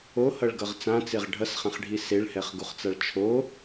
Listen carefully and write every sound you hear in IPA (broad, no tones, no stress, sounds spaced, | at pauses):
o h ʌ ɭ ɡ ʌ ʁ t͡s ã t͡s e ʁ ɖʱ ʌ s χ ã χ ɖʱ i s e ɭ h ɛ χ ɡ u χ t͡s a ɭ t͡ʃʰ o